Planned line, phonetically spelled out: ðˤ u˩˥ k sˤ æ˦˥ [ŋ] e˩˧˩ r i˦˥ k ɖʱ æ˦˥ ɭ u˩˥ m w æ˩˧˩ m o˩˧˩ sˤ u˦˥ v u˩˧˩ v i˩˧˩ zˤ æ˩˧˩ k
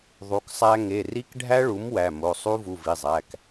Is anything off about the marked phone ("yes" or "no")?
no